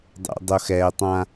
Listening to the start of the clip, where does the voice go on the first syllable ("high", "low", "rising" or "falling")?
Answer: low